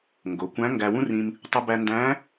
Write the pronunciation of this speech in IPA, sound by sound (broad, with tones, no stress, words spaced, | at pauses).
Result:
ŋɡo˩˧kʷæ̃˧˥ ŋɡæ˧wũ˥rĩ˧m | tˤu˧bæ˧ ndæ̃˧˥